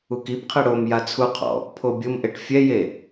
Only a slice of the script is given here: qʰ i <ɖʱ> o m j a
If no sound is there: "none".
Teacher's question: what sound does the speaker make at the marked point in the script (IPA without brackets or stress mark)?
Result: ɽ